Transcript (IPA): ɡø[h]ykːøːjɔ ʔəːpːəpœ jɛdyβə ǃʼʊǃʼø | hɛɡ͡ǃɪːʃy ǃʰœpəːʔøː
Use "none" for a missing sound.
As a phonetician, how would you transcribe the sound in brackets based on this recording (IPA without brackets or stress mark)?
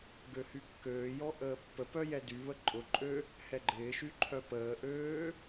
h